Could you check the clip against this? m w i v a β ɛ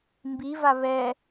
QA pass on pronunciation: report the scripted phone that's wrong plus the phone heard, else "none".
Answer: w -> b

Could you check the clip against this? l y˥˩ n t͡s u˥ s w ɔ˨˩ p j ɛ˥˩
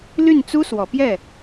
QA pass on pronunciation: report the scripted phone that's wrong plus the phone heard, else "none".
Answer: none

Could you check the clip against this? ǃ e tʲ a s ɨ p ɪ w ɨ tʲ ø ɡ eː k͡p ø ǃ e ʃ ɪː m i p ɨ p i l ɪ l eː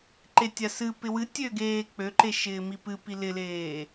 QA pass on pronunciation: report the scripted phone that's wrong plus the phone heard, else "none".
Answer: none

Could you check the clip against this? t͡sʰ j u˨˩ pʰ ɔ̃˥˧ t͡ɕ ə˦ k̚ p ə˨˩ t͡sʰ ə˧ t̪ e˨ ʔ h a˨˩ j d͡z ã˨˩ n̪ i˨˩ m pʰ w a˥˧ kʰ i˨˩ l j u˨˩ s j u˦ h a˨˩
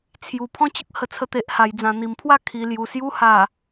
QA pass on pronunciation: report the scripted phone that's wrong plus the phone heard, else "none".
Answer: p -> h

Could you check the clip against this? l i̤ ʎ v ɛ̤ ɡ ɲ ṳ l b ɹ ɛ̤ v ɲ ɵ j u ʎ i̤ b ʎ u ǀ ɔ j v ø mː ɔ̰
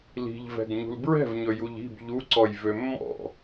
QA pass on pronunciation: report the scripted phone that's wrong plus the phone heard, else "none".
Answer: none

